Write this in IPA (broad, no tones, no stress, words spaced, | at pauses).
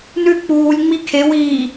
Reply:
nʉ k͡puːlʲ ŋ͡mikʰe wiː